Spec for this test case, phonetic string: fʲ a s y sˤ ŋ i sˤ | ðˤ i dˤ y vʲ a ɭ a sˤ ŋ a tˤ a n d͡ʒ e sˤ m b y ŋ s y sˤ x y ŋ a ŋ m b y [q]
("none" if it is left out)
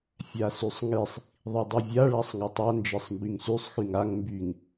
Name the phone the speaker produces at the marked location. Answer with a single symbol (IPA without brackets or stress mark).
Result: ŋ